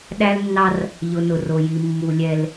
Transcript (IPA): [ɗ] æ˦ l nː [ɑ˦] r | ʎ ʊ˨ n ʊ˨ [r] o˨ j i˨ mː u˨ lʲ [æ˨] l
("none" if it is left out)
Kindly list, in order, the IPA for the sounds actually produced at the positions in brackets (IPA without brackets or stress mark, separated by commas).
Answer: ɗ, ɑ˦, r, ɛ˨